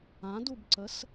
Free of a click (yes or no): no